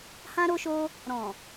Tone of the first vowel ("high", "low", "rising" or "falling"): high